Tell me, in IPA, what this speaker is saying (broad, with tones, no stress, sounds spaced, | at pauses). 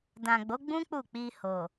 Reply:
d ã˨ ɡ͡b o˨˦ ɡ͡b ũ˦ k͡p u˦˨ k͡p i˧ h o˨